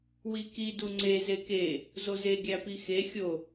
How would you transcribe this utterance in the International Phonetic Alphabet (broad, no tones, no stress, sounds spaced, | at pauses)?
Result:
w i k i d u ŋ͡ǀ e z e k e | z o z e ɡʲ æ p i x e xʲ o